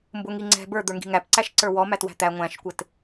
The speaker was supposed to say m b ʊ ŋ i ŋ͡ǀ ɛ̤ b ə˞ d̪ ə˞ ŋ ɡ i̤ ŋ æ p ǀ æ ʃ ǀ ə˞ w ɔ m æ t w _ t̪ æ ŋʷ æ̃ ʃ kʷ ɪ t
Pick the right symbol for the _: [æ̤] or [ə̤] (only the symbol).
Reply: æ̤